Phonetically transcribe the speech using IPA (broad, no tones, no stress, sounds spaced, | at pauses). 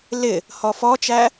l ɪ | h ɔ f ɔ t͡ʃ æ